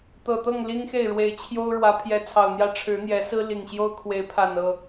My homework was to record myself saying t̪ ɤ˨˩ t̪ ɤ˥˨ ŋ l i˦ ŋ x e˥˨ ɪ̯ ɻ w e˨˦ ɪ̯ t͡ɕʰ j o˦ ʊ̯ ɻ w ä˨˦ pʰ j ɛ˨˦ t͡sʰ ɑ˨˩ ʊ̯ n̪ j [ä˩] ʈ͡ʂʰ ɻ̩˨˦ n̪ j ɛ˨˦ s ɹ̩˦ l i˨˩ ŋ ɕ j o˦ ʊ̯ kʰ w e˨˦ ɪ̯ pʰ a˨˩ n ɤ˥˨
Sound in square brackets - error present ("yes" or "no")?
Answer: yes